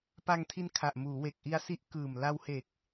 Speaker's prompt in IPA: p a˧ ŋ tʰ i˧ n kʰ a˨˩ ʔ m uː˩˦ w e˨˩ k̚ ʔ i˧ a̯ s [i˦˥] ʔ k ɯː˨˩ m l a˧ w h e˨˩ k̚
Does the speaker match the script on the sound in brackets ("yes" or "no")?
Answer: yes